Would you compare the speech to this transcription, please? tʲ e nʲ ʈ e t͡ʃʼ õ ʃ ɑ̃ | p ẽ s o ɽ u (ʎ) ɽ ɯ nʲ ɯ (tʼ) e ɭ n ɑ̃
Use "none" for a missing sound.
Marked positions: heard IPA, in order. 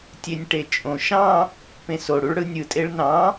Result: ɭ, tʼ

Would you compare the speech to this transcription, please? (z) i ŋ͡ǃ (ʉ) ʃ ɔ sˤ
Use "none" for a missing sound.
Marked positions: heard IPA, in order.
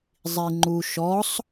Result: zˤ, u

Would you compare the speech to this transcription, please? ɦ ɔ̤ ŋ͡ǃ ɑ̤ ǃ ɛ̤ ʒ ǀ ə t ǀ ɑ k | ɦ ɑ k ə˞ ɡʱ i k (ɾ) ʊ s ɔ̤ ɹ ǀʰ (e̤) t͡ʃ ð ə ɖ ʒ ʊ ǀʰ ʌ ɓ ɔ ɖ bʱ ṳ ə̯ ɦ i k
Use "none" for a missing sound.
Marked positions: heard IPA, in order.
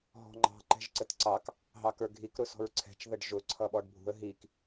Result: ɾ, ɛ̤

